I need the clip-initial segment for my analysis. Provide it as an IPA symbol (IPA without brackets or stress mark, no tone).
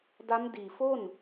d